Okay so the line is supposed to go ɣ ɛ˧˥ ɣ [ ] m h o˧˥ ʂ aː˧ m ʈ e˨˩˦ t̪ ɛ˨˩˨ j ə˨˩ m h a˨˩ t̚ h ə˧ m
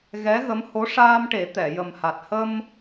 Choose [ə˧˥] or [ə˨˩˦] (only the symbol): ə˧˥